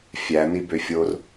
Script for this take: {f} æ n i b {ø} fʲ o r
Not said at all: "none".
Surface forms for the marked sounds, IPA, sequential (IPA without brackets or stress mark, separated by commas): fʲ, ø